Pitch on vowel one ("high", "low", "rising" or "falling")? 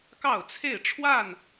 falling